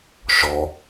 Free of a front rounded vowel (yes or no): yes